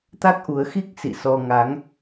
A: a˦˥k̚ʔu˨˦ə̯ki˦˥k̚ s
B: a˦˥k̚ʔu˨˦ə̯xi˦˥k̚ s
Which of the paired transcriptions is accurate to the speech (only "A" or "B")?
B